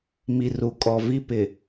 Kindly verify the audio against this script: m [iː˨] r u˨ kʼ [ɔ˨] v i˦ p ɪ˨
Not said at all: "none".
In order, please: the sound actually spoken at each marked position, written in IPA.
i˨, ɔ˨

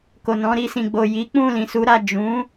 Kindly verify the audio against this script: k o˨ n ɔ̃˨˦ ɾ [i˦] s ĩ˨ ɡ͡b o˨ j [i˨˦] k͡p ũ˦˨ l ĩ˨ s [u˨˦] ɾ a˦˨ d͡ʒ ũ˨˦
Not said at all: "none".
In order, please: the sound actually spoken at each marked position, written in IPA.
i˧, i˨˦, u˨˦

